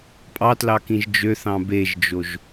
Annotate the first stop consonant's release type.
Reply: ejective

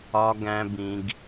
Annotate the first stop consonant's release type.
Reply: plain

